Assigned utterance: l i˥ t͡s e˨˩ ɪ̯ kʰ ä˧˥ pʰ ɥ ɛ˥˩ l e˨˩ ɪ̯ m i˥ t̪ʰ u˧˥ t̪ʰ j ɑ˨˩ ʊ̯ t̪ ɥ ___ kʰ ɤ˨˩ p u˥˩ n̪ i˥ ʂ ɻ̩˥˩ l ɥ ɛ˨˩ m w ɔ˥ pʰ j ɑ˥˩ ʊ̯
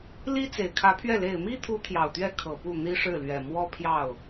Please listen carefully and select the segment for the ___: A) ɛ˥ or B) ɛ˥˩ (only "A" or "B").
A